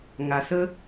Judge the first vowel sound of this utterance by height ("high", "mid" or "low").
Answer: low